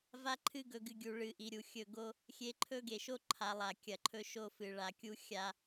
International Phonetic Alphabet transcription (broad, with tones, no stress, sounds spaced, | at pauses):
v a˦ ǃʰ ɨ˦ ɡ ɵ˨ ɡ ɨ˨ ɡʲ u˨ ɭ ɨ˨ ʔ i˨ ɾʲ u˨ xʲ ɵ˦˨ ɡ o˦ | xʲ e˨ ǃʰ ɵ˦ ɡ e˨ ʃ o˦ ǃʰ a˨ lˠ a˨ kʲ ɐ˨ ǃʰ ɵ˦ ʃ o˦ f ɨ˨ ɭ a˨ kʲ u˦ xʲ a˦